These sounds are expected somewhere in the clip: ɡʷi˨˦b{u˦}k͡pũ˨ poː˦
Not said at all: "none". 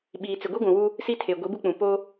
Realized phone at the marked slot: u˦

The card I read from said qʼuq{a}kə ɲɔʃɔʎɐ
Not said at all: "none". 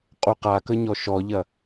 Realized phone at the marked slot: a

